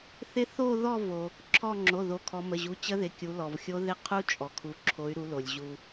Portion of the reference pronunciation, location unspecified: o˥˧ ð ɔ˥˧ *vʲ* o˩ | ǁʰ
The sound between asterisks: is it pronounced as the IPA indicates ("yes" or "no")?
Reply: no